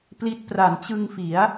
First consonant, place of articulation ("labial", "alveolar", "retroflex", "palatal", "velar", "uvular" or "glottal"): labial